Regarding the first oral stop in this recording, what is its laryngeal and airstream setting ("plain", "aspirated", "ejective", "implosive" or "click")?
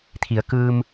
aspirated